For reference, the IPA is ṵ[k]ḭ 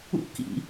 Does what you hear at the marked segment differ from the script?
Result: no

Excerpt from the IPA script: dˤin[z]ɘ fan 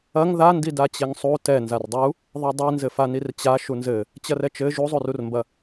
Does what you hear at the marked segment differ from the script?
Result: no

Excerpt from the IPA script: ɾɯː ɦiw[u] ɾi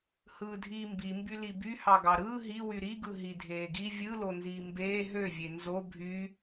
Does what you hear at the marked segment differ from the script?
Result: yes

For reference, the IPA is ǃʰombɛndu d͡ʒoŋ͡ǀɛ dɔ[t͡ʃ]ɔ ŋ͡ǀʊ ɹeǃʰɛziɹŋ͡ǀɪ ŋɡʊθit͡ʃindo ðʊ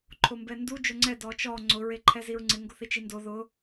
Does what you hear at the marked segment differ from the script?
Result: no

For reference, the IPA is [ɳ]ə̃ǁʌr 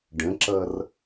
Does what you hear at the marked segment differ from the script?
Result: yes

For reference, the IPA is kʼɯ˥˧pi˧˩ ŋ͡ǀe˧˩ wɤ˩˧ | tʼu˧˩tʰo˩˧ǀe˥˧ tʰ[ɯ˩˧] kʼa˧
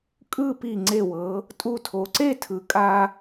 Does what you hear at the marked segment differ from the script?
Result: no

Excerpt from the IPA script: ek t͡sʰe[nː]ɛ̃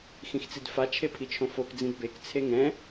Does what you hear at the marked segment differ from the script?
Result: yes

